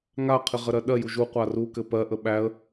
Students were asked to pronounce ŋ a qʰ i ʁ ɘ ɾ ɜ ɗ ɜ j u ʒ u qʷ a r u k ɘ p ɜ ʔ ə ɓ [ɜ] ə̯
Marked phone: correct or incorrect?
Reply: incorrect